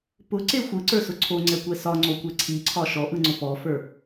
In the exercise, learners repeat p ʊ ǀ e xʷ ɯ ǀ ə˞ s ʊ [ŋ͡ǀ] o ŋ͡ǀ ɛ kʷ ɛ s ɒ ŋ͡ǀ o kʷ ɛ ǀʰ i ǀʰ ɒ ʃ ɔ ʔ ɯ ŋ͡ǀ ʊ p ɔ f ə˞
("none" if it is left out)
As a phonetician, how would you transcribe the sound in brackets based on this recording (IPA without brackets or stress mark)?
ǀʰ